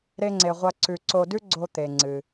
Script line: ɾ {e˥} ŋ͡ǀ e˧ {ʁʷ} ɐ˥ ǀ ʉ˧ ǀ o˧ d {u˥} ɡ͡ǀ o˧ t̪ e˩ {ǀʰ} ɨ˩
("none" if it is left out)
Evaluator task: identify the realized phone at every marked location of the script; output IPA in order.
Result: e˥, ʁʷ, ʉ˥, ŋ͡ǀ

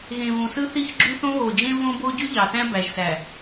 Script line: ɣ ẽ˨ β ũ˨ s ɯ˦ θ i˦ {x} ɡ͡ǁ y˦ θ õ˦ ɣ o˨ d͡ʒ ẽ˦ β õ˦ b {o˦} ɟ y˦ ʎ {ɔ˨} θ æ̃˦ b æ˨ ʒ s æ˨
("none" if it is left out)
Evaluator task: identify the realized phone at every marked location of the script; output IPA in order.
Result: x, o˦, ɑ˨

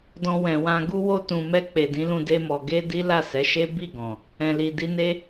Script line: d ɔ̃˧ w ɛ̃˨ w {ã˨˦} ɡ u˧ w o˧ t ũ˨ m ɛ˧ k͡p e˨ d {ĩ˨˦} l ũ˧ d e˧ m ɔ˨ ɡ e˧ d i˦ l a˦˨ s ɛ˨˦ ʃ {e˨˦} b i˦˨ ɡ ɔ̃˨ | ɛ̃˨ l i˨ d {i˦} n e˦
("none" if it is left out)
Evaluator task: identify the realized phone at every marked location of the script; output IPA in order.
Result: ã˧, ĩ˨˦, e˦, i˧

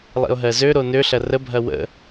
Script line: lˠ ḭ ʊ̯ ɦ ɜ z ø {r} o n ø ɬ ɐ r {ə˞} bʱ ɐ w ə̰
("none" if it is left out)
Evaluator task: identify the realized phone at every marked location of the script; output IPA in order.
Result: ɾ, ə

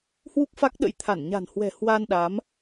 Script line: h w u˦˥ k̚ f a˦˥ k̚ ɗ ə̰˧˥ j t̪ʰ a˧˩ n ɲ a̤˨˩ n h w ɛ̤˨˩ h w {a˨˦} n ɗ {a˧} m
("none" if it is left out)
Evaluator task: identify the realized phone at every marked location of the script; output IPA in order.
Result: a˧, a˨˦

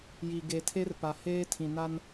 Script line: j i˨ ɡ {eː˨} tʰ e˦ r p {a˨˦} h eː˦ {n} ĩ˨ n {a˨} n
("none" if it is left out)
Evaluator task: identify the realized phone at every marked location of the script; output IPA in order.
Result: e˨, a˨, tʰ, a˦

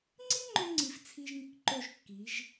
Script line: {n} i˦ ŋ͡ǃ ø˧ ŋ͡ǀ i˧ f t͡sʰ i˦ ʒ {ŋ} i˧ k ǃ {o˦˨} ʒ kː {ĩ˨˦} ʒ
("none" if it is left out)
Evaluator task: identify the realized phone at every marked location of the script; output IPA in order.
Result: ŋ͡ǀ, ŋ, o˦˨, i˨˦

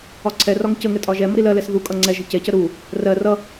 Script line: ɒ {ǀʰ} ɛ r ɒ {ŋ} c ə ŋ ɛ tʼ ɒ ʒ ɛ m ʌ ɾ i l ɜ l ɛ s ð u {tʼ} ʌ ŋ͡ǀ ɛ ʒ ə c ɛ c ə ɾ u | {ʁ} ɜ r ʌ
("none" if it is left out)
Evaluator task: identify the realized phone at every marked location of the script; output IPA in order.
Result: ǀʰ, ŋ, kʼ, r

